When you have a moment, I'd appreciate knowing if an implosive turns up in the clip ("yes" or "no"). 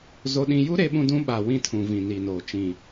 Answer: yes